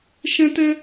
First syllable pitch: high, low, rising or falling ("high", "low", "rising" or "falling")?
high